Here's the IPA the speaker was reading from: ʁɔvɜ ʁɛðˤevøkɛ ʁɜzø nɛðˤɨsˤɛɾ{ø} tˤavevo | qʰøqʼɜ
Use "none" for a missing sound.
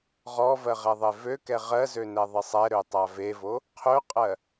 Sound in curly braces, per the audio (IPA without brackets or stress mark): ø